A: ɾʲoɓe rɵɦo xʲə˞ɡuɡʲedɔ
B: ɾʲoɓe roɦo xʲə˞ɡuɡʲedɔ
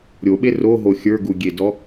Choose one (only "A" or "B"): B